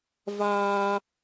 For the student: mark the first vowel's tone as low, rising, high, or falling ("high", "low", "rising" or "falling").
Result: high